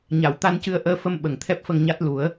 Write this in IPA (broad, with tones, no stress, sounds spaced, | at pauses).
ɲ a˨˩˨ w t̪ a˧ n c ɨ˧ ə̯ ʔ əː˧ f ə˧ m ɓ ə˨˩ ŋ t̪ʰ ɛ˦˥ p̚ f ə˧ ŋ ɲ a˦˥ t̚ l u˨˩˦ ə̯